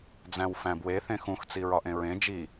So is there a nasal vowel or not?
yes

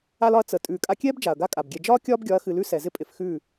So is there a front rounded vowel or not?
no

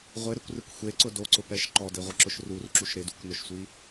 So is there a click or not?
yes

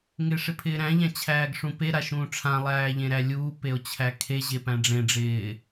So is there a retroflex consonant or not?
yes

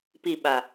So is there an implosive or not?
yes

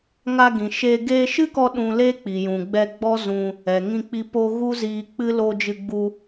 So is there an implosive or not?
yes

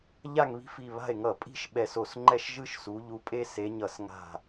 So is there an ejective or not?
yes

